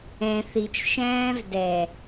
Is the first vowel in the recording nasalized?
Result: yes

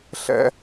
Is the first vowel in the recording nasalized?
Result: no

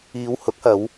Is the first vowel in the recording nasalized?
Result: no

